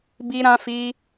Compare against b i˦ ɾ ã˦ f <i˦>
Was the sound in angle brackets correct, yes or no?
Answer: yes